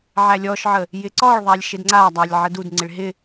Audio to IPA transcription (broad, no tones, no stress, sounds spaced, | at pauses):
ʕ æ lʲ ɔ ʃ ʕ ə | j ɪ ǀ ɔ ɭ ðˤ æ lʲ ʃ ɪ d ŋ͡ǀ a dˤ a lʲ ʕ ə d u d ŋ͡ǀ ɪ ɭ ɦ ɪ